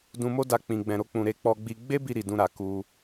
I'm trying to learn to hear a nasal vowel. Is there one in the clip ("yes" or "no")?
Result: yes